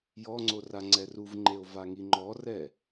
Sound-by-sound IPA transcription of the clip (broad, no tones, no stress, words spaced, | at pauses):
jɔŋ͡ǀo raŋ͡ǀɛruvŋ͡ǃeo̯ vaŋiŋ͡ǃɔrɛ